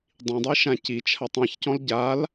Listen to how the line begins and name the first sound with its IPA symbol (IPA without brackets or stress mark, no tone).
dˤ